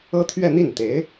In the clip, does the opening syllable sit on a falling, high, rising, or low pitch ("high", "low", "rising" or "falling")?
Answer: high